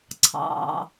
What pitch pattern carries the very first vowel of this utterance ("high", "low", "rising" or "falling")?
low